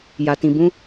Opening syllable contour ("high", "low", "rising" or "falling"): low